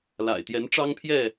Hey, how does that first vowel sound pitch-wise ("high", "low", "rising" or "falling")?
low